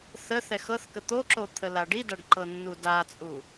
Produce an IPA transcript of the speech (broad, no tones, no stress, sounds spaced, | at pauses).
θ ə θ ɛ x ɤ θ k ə t̪ o ǁ o t̪ʰ ə l a ɖ i d a ɖ ǃ ɤ nː u d a t͡sʼ u